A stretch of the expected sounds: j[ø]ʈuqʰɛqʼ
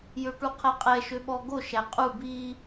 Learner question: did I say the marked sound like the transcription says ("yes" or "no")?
yes